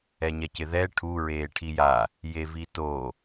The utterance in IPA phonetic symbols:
ɛ ɲ ɛ c ɪ ð ɛ ʈʰ u ɹ eː ʈʰ i j a | j e v i t o

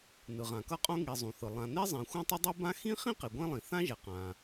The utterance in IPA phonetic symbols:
n ɯ˩ ʁ ã˩ k ʌ˥ qʼ õ˥ ŋ i˩ zˤ ũ˩ θ ɯ˩ lˠ ã˩ n e˥ zˤ ẽ˩ xʷ ɛ̃˥ tˤ ʌ˥ dˤ ɯ˥ b ã˥ x ĩ˥ χ ĩ˥ q i˩ ɡʷ ẽ˥ lˠ ĩ˩ θ ã˥ ʒ ɛ˩ q ã˩

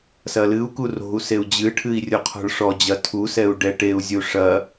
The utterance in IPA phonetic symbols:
s ɐ l ɨ u̯ k u r o̤ u̯ s e u̯ d͡ʑ ɨ ʈʰ ɨ i̯ rʲ o qʰ ɔ̤ ɭ ʂ ɔ d͡ʑ ɐ tʰ u s ɛ u̯ ɖ ɛ ʈ e u̯ zʲ u ʂ ɐ

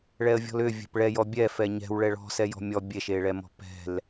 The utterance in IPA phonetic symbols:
ɭ ɛ ə̯ vʲ ɔ̤ l ʏ vʲ ɛ̤ p ɭ ɛ j ɔ bʲ ɛ f ɛ ɲ ɛ̤ w ɭ ɛ ɭ ɔ̤ s ɛ j ɔ̤ mʲ ɔ bʲ e ʃ e ɭ ɛ m ɔ̤ p ɛ̤ l

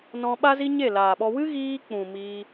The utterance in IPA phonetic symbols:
n ɔ̃˧ ɓ a˦ z i˦ ɲ e˦˨ l aː˨ ɓ ɔ˧ w ɨ˦ ɣ iː˧ k͡p ũ˨ m iː˦

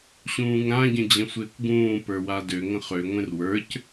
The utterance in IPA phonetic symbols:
ɕ ũː ŋ ɾ ã ɟ ə̃ d͡ʑ ə̃ sʷ ɪː kʷ ɡ ũː p ə˞ w a d ø ŋ ə̃ χ ø ŋʷ ẽ r w ə˞ c

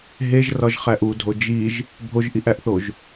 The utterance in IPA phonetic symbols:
ɦ e ʒ r ɒ ʒ χ æ ʔ u dʱ o d͡ʒ i ʒ | bʱ o ʒ ʔ i ʔ æ ʔ θ o ʒ

